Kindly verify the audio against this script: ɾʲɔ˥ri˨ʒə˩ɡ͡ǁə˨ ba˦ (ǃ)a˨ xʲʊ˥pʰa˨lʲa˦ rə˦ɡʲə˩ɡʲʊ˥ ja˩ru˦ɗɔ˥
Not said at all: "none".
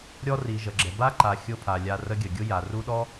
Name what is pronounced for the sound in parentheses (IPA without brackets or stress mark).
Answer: ǃ